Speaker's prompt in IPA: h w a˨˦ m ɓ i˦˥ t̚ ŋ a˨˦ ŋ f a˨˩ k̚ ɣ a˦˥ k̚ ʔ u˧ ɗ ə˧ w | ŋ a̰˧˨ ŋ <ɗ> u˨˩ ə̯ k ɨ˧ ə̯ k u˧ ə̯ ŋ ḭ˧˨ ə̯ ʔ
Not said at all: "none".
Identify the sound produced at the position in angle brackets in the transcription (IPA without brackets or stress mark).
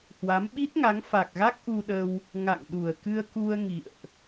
ɗ